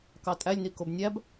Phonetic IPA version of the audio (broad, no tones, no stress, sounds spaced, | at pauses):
k ɑ tʼ æ lʲ n i k o b nʲ æ b